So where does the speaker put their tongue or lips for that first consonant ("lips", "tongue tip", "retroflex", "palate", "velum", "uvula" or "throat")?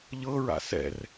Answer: palate